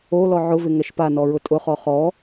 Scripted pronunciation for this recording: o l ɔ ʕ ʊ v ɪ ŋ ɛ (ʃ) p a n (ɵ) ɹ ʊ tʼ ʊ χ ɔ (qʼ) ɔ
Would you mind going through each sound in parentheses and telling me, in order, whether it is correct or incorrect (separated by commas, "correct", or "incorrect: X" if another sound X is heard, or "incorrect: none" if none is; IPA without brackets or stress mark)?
correct, incorrect: ɔ, incorrect: χ